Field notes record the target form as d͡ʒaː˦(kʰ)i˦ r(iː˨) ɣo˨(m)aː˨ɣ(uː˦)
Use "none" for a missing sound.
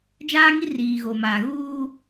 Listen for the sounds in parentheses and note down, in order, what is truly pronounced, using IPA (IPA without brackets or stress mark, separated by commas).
ŋ, iː˨, m, uː˦